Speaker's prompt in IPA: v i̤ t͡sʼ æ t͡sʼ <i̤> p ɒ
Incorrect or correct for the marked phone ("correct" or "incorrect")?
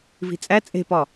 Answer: incorrect